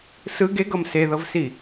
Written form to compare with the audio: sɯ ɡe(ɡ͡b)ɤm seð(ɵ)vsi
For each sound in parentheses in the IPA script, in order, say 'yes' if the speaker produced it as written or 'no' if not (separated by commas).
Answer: no, no